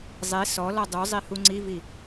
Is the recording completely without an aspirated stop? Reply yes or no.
yes